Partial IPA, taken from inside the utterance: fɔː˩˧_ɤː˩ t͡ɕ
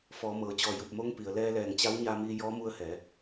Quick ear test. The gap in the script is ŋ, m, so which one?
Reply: m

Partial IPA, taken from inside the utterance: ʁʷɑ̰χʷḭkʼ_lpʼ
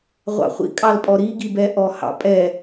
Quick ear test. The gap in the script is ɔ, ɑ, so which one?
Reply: ɑ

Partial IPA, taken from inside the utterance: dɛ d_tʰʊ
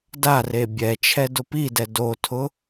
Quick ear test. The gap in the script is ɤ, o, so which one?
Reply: o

